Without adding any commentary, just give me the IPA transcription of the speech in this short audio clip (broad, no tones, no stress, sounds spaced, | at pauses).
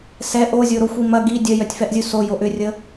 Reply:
s ɛ ʔ o zʲ o ɾ o xʷ i m ɐ ɡ i dʲ œ j œ tʲ f ɛ ʔ zʲ u s o j o ʔ ʏ rʲ ə